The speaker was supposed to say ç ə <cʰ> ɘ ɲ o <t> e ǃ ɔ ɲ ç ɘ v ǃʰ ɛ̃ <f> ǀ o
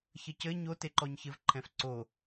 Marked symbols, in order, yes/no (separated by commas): no, yes, yes